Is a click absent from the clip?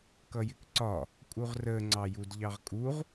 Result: no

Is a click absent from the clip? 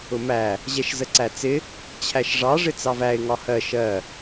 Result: no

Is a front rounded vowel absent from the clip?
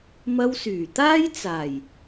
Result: no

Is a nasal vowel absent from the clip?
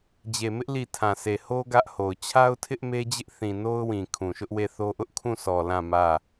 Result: no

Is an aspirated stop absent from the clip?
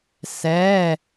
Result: yes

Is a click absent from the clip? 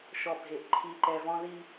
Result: no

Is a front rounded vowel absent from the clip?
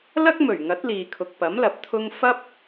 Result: yes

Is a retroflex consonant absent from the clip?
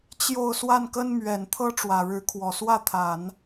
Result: no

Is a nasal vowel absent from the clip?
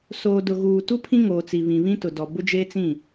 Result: no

